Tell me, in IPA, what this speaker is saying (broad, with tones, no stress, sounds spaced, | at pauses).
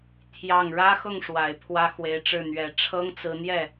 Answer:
t̪ʰ j ɑ˥˩ ŋ ɻ ä˥ x ʊ˥˩ ŋ ʂ w a˨˩ ɪ̯ pʰ w ä˥ x w e˧˥ ɪ̯ ʈ͡ʂ ɻ̩˥˩ n̪ ɥ ɛ˧˥ ʈ͡ʂʰ ɤ˥ ŋ t͡s ɹ̩˧˥ n̪ j ɛ˥˩